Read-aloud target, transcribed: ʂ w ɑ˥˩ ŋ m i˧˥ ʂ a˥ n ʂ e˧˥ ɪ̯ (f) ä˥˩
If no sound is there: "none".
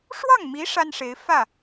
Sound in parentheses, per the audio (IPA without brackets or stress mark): f